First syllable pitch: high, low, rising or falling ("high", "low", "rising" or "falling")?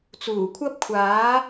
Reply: low